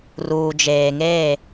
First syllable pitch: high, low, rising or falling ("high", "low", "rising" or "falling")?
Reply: low